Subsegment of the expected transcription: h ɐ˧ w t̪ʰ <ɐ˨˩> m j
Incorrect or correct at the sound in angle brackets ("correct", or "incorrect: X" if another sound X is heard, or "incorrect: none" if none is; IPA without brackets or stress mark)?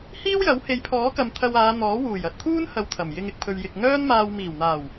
correct